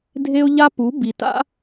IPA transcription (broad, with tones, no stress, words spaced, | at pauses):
dʱe˦ʊ̯ʎa˦pu˨˦ bi˨ta̰˦